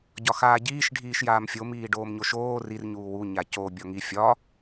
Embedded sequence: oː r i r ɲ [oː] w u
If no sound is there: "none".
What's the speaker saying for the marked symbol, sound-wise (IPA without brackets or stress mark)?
uː